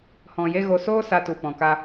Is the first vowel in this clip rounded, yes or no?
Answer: yes